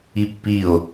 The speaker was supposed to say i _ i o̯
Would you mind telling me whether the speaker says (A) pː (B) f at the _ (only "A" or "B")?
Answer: A